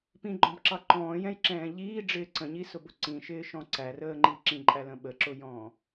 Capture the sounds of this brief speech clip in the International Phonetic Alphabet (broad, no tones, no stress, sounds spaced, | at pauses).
p ĩ ɡ͡ǃ ɔ̃ b ǁ ɑ ǃ ɔ̃ː j ɛ̃ j ǁ ɛ̃ː ʎ iː ɖ͡ʐ ɪː ǀ ə̃ ɲ i s ʊ b ʊ ǀ ĩ ʃ ɪː ʃ ɔ̃ ǀ æ r əː ŋ͡ǃ i ǁ ĩ ǃʼ æ l ə̃ ɓ ə ǁ ʊ j ɔ̃ː